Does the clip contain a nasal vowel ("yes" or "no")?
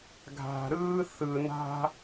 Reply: no